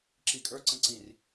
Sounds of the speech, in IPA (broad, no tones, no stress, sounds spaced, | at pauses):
ǁ i kʼ ə˞ ǀ ə̃ ǀ ĩ r